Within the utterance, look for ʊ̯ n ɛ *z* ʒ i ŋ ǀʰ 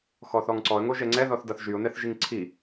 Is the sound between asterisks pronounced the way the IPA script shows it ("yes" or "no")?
no